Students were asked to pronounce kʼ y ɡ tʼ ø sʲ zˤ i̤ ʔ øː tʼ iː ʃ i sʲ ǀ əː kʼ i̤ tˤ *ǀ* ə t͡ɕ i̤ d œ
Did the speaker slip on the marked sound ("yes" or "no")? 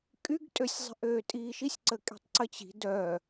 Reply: no